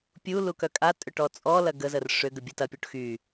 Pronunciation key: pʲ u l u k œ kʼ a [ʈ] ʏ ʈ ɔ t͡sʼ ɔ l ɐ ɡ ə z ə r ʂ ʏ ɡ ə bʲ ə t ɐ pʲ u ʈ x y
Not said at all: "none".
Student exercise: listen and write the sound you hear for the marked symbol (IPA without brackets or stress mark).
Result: tʼ